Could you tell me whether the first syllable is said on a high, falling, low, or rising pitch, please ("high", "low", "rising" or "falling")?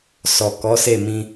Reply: low